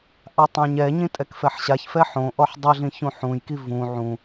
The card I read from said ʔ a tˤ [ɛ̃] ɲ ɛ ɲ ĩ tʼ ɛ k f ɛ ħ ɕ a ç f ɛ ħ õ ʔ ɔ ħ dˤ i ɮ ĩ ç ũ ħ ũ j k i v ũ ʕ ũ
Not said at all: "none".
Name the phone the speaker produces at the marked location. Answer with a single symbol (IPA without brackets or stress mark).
ɛ̃